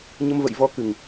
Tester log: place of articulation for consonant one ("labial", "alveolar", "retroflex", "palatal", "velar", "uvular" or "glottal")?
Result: palatal